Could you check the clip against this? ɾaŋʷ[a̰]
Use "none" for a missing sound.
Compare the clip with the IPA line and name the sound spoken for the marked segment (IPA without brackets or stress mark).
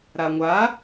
a